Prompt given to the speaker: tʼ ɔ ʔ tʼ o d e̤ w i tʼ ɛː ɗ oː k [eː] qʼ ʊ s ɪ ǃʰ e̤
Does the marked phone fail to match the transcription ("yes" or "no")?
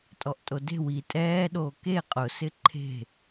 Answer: yes